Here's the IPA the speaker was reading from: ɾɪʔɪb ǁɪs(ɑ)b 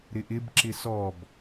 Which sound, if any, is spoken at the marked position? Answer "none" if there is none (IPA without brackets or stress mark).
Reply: ɔ